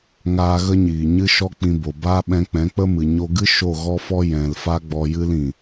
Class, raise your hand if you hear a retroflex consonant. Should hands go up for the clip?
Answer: no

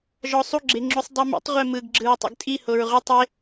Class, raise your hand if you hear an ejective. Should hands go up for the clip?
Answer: yes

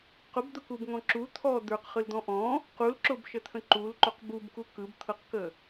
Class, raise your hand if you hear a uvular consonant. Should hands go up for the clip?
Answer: yes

